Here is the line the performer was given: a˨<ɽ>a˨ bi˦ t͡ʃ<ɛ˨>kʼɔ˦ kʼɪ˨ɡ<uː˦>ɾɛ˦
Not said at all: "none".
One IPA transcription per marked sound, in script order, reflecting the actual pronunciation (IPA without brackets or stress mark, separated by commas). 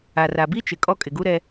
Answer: r, ɪ˨, u˦